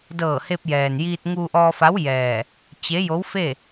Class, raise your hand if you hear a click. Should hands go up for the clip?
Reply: no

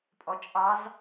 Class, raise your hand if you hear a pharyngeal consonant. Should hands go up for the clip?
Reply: no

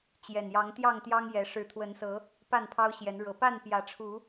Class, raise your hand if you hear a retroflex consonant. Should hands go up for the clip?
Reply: yes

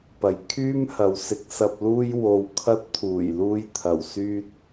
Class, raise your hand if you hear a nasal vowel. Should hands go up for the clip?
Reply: no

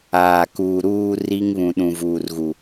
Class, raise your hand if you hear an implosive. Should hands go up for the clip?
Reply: yes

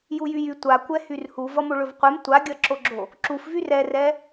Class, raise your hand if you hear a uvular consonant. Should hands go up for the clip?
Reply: yes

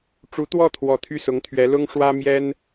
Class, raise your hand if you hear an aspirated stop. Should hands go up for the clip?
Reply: yes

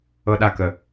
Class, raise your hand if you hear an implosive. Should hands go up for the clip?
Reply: yes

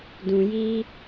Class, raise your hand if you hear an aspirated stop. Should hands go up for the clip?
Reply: no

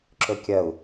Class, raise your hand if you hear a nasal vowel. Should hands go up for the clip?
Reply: no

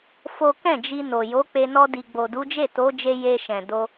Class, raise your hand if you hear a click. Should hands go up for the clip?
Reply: no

